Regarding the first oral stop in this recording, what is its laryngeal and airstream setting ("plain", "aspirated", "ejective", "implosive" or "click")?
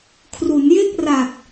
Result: aspirated